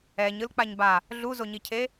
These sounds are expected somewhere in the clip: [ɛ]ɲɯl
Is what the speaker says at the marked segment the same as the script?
yes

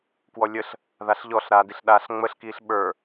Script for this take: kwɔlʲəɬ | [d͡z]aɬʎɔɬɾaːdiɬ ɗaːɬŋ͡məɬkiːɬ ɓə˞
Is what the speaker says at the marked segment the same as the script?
no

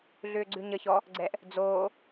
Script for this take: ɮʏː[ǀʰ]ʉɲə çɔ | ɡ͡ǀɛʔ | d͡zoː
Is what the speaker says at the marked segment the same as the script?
no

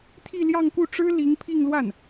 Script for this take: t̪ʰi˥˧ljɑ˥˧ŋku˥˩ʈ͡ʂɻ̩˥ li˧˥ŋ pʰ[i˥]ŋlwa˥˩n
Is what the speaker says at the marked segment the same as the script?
no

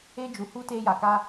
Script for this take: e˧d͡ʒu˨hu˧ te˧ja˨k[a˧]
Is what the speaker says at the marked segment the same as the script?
yes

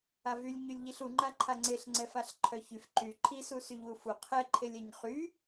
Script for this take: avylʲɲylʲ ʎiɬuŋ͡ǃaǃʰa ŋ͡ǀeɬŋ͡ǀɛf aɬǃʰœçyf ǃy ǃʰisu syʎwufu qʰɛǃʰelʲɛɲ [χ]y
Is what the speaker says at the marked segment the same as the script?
yes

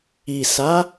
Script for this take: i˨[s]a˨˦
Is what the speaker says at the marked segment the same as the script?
yes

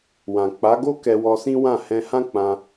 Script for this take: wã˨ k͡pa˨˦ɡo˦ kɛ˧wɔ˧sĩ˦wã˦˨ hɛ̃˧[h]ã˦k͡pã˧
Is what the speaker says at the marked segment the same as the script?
yes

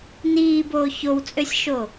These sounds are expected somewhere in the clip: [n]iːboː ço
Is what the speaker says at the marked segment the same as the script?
yes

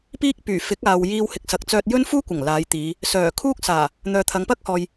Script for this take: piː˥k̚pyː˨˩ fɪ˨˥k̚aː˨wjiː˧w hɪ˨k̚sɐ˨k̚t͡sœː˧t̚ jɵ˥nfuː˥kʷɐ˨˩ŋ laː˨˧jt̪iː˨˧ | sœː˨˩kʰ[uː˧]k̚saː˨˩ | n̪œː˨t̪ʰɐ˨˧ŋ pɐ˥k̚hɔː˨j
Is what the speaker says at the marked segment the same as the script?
no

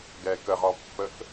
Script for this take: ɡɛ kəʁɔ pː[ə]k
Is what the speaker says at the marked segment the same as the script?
yes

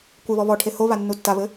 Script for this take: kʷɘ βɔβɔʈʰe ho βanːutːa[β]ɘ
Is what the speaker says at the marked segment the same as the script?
yes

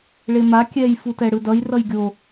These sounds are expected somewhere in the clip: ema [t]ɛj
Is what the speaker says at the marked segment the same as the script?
no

